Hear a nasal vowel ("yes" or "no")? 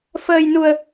no